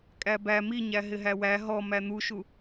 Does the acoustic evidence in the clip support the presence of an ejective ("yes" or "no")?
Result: yes